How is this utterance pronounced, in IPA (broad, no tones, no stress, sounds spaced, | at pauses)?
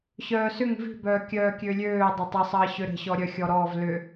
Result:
ɕ œː s ʏ ŋ v i̤ b œː kʲ œː kʲ ø lʲ øː dˤ ʏ tˤ ə sˤ əː ɕ ø ɾ ə̤ ɕ ɔ ɾʲ œ xʲ ɔ ɾ ɔː v l ʏ